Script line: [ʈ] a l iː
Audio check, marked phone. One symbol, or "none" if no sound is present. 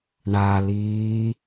ɳ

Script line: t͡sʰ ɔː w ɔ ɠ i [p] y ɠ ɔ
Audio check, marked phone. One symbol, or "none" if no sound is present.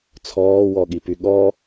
p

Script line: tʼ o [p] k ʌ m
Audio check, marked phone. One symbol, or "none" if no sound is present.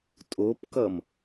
p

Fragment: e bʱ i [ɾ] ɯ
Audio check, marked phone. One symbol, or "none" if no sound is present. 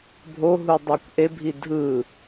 dʱ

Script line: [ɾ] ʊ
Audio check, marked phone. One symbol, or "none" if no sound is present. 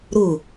ɾ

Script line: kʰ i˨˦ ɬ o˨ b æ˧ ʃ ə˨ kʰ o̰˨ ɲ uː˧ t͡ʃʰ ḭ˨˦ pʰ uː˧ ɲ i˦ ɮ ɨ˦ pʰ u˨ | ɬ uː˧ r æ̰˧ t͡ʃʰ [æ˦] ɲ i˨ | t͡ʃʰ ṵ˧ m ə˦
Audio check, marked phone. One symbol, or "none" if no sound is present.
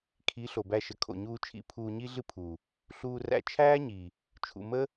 æː˦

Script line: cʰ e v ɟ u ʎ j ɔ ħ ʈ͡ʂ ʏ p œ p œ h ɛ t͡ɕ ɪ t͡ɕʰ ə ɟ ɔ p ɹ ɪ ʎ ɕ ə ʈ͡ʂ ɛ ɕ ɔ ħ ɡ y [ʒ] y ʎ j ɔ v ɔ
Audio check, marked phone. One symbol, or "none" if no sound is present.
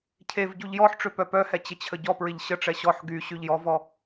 ɕ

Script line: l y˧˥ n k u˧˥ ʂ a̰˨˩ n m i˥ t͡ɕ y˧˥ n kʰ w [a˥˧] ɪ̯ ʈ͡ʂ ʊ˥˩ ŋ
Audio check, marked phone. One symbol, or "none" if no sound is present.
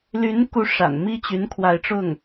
a˥˧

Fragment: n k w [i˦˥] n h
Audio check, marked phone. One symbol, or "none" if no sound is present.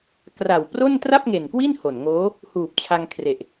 i˥˩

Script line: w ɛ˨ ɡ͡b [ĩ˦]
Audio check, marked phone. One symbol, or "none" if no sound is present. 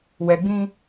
ĩ˦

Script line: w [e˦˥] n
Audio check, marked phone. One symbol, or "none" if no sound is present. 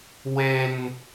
e˧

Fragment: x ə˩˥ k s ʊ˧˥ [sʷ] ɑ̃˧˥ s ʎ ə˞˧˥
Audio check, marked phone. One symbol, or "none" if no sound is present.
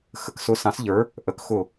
s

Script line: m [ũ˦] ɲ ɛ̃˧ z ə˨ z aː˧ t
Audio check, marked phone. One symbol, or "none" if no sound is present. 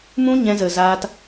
ũ˦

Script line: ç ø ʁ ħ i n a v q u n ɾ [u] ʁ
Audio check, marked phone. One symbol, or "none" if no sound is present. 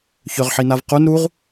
u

